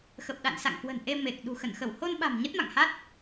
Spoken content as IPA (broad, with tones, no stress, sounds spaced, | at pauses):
x ə˨˩ p̚ ɗ a̰˧˨ n s a̰˧˨ ŋ k w ə̤˨˩ n ʔ e˧ m e˨˩ k̚ ɗ ṳ˨˩ x ə˧˩ n x ə˧˩ w h o˧ n ɓ a̤˨˩ m ɲ ə˦˥ t̚ m a̰˧˨ ŋ h a˦˥ t̚